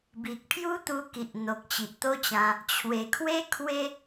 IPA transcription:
b i˨ k̚ pʰ j u˦ t̪ u˧ k i˨ ʔ n̪ o˨ k̚ t͡ɕ i˨ ʔ t̪ o˦ t͡ɕ ã˧ | t͡ɕʰ w e˨˩ kʰ w e˦ kʰ w e˦

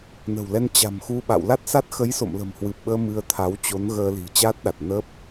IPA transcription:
n ə̤˨˩ w l ɛ˧ n t͡ɕ a̤˨˩ m x u˧ ɓ a̰˧˨ w l a˦˥ t̚ s a˦˥ t̚ x ə˨˦ j s o̰˧˨ m l ə̤˨˩ m h w ɨ˨˩ p̚ ɓ əː˧ m ɨ˧ ə̯ t̪ʰ a˨˦ w t͡ɕ o˨˦ n ɣ əː˧ l i̤˨˩ t͡ɕ aː˦˥ t̚ ɗ a˨˩ t̚ n ə˦˥ p̚

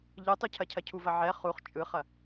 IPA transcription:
ʎ ɯ tˤ ʉ cʰ ɐ cʰ ɐ cʰ u v ɐ ʕ ɛ χ u χ t͡ʃʼ ɯ χ ɐ

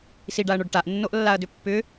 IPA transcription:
s i ɖ a ɐ̯ ɳ o ɖ ʈ a ʔ nː o ʔ lː a ɐ̯ d ʏ pː ʏ

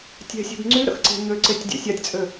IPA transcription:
tʲ ɛ̤ sʲ ɛ̤ b ŋ͡ǀ y ɾ ə̰ x ǀ e̤ ɲ ø ǀ e tʲ dʲ ɛ̰ sʲ a tʲ t͡sʼ ø

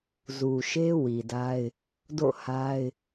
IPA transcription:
z u˨ ʃ e˦ w i˨ d a˦ ɪ̯ | d o̰˦˨ h a˦ ɪ̯

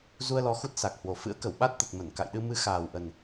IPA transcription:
z u˧ ə̯ l ɔ˨˦ x u˦˥ t̚ s a˨˩ k̚ h w o˨˩ f ɨ̰˧˥ ə̯ k ə˧˩ w ɓ a˦˥ t̚ t̪ ə˨˩ t̚ m ə˧˩ n k a̰˧˨ j ɗ ɨ˧ m ɨ˨˦ x aː˨˩ w ʔ ə˨˩ n

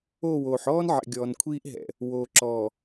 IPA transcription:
oː˦˨ w oː˨ ħ ɔː˦ n ʕ ɛ̰˨ ɡʲ ɔː˨ n kʷʰ iː˦ ʔ ɦ ɛ̰˨ | w oː˨ ǁ ɔ˨

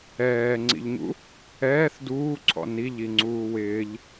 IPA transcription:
ɛː ŋ͡ǀ ḭ ʎ ɲ ṵ | ɛː θ d uː ǀʰ ɔ̰ n i ʎ i ŋ͡ǀ uː w ɪː ʎ

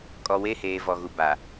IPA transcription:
kʼ ɔ˨ w e˦˨ h eː˨ v ɔ˨ ɣ u˨ b a˨

